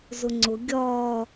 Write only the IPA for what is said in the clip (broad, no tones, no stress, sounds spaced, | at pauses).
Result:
z ʊ ŋ͡ǀ ʊ ɡʲ ɒ